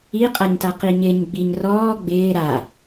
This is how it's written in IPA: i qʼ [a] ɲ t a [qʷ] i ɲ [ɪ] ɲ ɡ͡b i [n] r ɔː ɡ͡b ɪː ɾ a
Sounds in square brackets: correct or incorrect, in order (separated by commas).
correct, incorrect, correct, incorrect